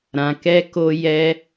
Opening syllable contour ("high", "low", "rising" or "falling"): low